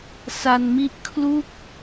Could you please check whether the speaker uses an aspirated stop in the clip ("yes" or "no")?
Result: yes